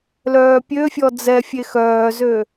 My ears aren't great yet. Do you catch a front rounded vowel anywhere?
yes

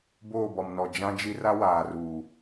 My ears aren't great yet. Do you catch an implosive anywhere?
no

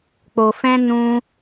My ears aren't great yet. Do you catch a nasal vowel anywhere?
yes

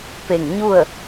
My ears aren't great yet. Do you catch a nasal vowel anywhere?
no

